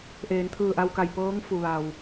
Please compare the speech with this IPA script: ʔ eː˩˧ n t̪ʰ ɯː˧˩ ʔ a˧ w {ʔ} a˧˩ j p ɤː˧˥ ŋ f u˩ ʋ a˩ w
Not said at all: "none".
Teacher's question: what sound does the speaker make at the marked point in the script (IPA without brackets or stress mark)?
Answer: k